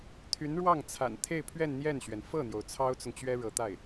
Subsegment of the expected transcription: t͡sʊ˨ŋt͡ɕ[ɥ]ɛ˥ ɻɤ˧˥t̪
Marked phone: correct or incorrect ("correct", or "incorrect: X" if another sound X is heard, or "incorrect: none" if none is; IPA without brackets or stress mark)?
correct